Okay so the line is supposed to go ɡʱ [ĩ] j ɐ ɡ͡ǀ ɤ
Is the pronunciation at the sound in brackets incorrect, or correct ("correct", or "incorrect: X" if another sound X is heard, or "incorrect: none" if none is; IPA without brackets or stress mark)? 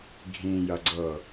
correct